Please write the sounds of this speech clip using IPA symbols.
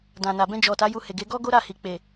d ã˨ n a˨ b ɛ̃˧ d͡ʒ ɔ˨ t a˨˦ j u˧ h e˨ ɡ e˨˦ ɡ ɔ˦ ɡ o˦ ɾ a˦˨ h i˨ k͡p e˨

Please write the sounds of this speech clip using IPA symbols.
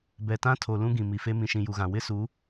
b ɛ˨ t ã˦ tʰ o˨ l ũ˦ ɡ ĩ˨ m i˨ f e˦ m ĩ˨ ʃ ĩ˨ j u˨ ɣ ã˨ w ɪ˦ s uː˨˦

